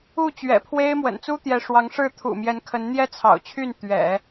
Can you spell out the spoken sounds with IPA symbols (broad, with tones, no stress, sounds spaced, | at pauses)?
u˥˩ t͡ɕ ɥ ɛ̰˨˩ pʰ w e˥ ɪ̯ m w ə̰˨˩ n t͡s u˥ t̪ j ɛ˧˥ ʂ w ɑ˧˥ ŋ ʂ ɻ̩˥˩ t̪ʰ ṵ˨˩ m j ɛ˧˥ n kʰ ə˧˥ n n̪ j ɛ˥ t͡sʰ ɑ̰˨˩ ʊ̯ t͡ɕʰ y˥˩ n t̪ ɥ ɛ̰˨˩˦